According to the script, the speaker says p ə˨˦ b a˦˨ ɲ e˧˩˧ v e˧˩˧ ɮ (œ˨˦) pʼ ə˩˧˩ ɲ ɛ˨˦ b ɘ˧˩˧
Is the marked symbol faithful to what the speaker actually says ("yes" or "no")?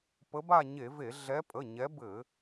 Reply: no